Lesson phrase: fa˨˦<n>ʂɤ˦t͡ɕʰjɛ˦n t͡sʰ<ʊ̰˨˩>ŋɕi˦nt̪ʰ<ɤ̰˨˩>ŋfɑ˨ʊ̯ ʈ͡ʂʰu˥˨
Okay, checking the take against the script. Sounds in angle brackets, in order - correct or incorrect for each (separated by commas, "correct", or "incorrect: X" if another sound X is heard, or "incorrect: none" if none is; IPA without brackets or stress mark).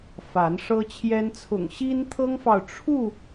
correct, correct, incorrect: ɤ˦